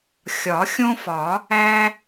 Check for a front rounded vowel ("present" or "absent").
absent